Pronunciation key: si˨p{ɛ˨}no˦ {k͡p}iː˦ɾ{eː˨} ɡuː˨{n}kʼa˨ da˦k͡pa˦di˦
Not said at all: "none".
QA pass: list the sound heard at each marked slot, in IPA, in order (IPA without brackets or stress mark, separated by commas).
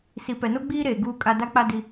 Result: ɛ˨, ɡ͡b, eː˨, none